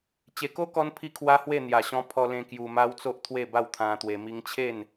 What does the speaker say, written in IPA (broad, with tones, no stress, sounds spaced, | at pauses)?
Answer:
t͡ɕ e˨˩ k o˦ k ɔ˦ n pʰ i˦ kʰ w a˦ h w e˥˧ n̪ j a˨˩ ɕ ɔ̃˧ pʰ ɔ˧ l ẽ˧ k j u˧ m a˦ w t͡s o˦ ʔ t̪ʰ w e˥˧ b a˥˧ w t̪ʰ ã˧ t̪ w e˧ m i˧ ŋ t͡ɕʰ e˥˧ n